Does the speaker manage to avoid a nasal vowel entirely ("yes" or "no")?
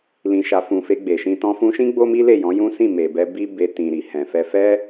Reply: no